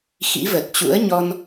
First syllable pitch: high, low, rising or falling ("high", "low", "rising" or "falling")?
rising